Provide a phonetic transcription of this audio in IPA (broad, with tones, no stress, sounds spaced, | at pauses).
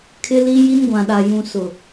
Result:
kʰ ɪ˦ l i˦ j i˦ n ɡʷ ã˨ ɗ a˨ j ũ˨ s ʊ˨